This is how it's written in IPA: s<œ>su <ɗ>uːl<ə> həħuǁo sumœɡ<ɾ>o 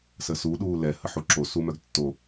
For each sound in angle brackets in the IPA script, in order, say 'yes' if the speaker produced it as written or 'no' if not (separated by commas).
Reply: no, yes, no, no